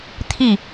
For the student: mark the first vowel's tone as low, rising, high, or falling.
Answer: falling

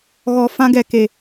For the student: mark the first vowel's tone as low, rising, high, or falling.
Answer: low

